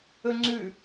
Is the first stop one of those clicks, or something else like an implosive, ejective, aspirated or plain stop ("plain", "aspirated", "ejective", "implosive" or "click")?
click